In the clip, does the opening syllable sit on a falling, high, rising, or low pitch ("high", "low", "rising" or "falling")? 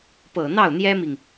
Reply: low